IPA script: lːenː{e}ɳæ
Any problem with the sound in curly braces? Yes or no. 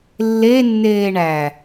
yes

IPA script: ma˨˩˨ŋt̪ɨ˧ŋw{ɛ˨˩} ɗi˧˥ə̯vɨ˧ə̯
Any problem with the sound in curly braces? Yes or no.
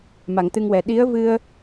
no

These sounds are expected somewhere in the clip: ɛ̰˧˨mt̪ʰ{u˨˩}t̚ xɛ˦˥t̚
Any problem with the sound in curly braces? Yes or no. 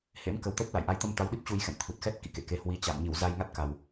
no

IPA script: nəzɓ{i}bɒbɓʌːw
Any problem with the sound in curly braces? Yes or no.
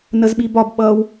no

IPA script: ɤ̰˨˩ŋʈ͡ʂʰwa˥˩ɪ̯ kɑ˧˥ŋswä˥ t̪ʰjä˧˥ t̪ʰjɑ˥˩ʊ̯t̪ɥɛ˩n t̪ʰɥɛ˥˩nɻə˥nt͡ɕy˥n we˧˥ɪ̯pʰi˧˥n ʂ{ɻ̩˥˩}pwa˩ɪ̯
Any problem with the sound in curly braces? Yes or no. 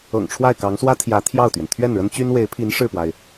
no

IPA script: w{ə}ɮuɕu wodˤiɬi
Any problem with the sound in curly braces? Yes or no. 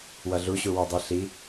yes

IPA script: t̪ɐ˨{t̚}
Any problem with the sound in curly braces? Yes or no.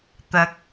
yes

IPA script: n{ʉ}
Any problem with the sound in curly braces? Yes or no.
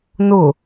yes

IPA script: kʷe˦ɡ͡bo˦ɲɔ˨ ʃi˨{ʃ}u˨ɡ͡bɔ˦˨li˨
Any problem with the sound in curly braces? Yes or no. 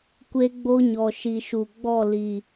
no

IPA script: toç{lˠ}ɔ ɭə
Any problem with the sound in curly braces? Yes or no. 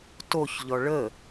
yes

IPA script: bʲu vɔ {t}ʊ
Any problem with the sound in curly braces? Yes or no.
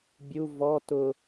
no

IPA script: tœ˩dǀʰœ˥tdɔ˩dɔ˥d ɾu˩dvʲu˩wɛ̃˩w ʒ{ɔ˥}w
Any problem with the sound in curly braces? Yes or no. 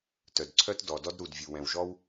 no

